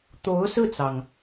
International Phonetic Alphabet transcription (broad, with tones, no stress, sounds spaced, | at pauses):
t̪ o˧˥ ʊ̯ s ɹ̩˥˩ t͡s ɑ˩ ŋ